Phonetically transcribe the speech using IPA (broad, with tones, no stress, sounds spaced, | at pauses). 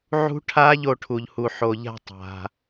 ʕ ṳ˦˥ ʈʰ a˦˥ ʎ o˥˧ ʈʰ u˨ ʎ h u˨ ħ o˨ ʎ a̤˥˧ tˤ a̤˨